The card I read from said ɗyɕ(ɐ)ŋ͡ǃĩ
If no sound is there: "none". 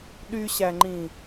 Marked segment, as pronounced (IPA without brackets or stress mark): æ